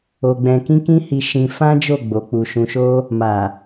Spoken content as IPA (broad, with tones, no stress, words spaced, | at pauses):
o˧ɡ͡bɛ̃˧ kĩ˦kĩ˦hi˧ ʃĩ˧ fã˦d͡ʒo˦˨ ɡ͡bo˨˦k͡pu˧ ʃũ˧ʃo˦ | ma˨